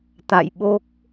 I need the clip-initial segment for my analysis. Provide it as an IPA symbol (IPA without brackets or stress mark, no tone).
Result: t̪